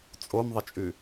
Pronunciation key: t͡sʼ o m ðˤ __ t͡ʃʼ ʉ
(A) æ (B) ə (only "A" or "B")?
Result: B